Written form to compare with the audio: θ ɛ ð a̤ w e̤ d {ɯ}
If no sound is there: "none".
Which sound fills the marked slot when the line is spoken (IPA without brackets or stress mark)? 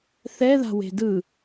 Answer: ɯ